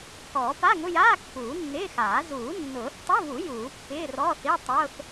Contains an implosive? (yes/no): no